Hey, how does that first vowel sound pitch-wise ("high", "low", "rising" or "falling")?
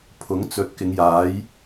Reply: rising